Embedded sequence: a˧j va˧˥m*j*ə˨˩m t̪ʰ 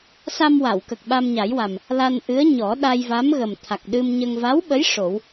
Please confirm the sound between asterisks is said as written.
no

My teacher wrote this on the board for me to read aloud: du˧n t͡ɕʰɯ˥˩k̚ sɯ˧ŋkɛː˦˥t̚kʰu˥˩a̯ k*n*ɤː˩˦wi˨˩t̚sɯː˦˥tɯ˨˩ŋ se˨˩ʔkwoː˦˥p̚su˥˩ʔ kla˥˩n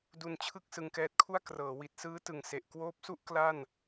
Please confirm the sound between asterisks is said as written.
no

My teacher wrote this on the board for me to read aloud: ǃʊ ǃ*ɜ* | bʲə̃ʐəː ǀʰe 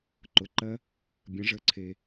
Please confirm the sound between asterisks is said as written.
yes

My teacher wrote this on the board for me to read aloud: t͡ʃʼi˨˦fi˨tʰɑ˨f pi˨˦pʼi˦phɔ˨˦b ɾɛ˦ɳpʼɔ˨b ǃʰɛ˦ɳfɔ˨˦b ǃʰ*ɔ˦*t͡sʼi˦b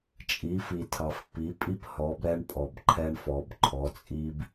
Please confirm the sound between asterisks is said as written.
no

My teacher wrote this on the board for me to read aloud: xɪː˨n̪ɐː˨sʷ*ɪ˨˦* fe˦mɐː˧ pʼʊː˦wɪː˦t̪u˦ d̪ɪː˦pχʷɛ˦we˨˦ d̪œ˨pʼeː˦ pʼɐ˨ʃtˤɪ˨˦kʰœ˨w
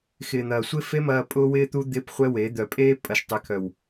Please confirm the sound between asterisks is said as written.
no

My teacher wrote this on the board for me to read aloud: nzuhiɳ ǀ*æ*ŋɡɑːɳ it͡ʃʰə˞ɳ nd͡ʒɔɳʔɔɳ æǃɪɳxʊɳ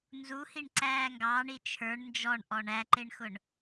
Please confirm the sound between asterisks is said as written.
no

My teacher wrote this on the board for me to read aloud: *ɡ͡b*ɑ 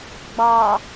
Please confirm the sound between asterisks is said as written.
yes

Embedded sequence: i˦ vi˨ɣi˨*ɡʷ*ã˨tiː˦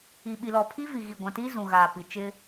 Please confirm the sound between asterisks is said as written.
yes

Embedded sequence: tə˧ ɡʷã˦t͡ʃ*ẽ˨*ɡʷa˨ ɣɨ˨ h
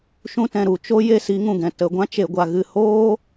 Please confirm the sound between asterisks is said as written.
no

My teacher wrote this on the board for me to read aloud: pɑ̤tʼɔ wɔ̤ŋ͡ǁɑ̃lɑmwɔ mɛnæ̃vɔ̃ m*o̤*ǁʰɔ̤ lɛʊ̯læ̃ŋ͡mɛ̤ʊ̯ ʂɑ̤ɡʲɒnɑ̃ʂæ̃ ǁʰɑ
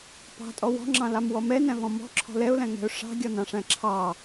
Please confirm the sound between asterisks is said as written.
no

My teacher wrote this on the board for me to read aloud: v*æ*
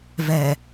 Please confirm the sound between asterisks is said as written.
no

